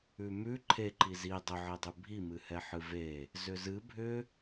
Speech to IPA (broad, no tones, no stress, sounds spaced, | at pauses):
ʉ m ʉ ǃʰ e ǃ i z i dˤ ʏ ʕ e dˤ ʉ bʱ i m ɨ h ɛ ħ ɨ v e | z ʏ z ɨ bʱ ʏ